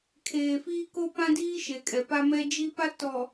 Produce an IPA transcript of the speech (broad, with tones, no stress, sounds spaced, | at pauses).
kʰ eː˨ f iː˦ k o˦ p ã˦ d iː˦ ʃ e˨ kʼ ɛ˨ p a˦ m ɛ˦ d͡ʒ i˦ p a˦ t ɔ˨